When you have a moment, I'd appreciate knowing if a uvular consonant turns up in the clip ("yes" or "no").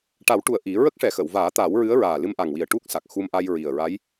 no